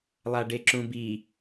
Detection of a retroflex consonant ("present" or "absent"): present